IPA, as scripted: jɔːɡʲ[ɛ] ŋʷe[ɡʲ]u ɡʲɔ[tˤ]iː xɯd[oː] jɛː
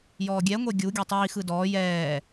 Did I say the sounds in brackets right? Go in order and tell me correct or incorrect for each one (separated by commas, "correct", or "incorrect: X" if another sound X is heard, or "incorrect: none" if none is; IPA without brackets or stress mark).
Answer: correct, correct, correct, incorrect: ɔː